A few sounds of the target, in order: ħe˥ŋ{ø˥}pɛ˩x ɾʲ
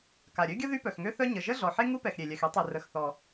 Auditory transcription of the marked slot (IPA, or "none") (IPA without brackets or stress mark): u˥